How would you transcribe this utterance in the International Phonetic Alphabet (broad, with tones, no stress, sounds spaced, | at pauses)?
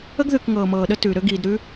ə˥ ɡ ð ʉ˧ k ŋ ɤː˧ m ɤː˧ ɗ ə˥ t ʉː˧ ɾ ø˥ ɡ iː˧ d ɾ ʉ˥